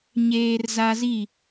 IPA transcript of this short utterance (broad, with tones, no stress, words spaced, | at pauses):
ɲeː˦rza˦zi˦˨